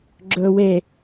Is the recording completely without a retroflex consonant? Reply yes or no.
yes